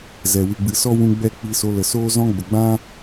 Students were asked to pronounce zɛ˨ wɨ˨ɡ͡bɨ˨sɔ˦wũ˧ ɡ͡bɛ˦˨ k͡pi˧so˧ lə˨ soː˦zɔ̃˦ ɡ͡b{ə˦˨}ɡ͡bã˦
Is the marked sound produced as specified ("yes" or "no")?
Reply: no